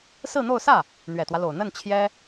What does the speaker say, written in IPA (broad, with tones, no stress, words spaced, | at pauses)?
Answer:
sɹ̩˥˧n̪o˥˧ʊ̯ sä˥˩ | n̪ɥɛ˨˩t̪wä˦lo˨˩ʊ̯ n̪ə˥˩n t͡ɕʰjɛ˥